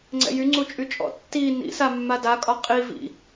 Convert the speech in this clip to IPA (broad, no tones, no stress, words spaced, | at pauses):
ŋ͡ǀɛ̰jyŋ͡ǀu t͡ʃʼyt͡ʃʼɔ̰ tːi nḭsa mːadakʼɒ qʼi vḭ